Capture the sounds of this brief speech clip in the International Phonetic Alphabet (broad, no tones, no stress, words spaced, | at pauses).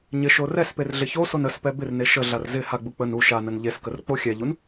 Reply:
ɲɪʃo rɛsper ɮɪçoson əspɛ bɪrne ʃəɮar zɪ haɡ͡bu k͡pən u ʃanən ʎeskər k͡poxʲɛʎun